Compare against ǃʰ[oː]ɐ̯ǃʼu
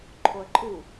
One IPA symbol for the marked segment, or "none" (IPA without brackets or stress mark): o